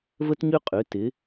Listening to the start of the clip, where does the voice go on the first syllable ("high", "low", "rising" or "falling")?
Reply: high